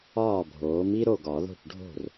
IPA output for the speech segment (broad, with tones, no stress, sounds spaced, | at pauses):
ɒː˥˩ bʱ oː˩˥ m i˥ ɾ o˥˩ ɡ ɒ˨˩˦ ð o̤˥˩ ʈ ɖʱ o̤˥˩ r